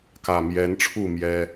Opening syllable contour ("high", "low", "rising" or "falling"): low